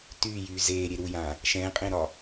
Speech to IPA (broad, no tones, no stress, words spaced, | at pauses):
tyːjyː zeːɾʲe ɾujã | ʃɛ̃ːqʼẽɾɒ